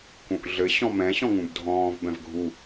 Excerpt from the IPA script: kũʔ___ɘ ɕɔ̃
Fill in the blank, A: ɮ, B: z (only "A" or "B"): A